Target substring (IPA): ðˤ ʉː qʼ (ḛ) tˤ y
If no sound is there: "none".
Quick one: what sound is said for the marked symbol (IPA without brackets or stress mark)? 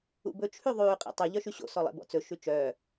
ḛ